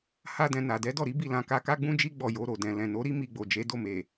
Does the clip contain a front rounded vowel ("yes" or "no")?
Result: no